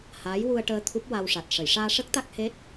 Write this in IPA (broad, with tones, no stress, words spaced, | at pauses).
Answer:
haː˧˥jwu˧ə̯ʈəː˧ t̪ʰu˦˥p̚wa˧wʂa˨˩t̚ ʂə˨˩˨jʂaː˧ʂə˦˥k̚ t̪a˦˥k̚ he˦˥t̚